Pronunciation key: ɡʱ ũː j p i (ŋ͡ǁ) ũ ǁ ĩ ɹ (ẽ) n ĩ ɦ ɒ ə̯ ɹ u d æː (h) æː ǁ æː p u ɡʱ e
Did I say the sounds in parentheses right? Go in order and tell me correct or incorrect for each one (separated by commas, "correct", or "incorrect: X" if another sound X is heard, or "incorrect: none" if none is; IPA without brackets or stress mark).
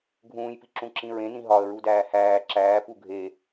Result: incorrect: ǁ, correct, correct